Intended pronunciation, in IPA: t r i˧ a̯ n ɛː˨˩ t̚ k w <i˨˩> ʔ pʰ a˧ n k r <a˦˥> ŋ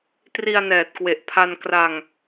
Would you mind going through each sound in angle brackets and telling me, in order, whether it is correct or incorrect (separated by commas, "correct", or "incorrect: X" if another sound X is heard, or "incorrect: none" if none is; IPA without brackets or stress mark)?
incorrect: e˨˩, incorrect: a˧